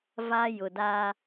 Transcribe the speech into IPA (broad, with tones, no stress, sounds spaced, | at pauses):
v a˦ j ʊ˨ d aː˦